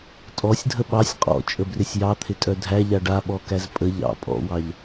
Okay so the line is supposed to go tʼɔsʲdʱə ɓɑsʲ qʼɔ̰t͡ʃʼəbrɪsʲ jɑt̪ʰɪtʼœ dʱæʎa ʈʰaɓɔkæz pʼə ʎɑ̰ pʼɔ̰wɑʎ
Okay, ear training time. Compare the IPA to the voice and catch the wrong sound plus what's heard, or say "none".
ʈʰ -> ɖ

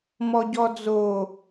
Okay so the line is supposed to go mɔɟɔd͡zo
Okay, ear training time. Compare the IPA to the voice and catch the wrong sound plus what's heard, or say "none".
none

